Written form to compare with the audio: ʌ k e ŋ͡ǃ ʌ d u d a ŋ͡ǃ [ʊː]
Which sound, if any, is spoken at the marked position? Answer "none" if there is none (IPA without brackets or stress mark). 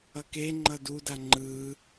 ɯː